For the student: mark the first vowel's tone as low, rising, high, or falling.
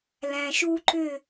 low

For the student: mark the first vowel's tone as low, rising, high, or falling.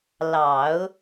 low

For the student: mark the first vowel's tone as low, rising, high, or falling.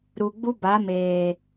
low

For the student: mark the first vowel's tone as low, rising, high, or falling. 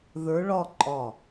rising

